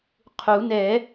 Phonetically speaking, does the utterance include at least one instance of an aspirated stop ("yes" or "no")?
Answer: yes